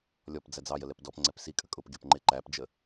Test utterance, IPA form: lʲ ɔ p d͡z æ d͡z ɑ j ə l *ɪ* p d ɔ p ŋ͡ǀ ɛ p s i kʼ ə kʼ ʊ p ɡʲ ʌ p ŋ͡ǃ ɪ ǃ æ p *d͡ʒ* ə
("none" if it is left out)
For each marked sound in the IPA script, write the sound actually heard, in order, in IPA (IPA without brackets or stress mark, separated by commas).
ɛ, d͡ʒ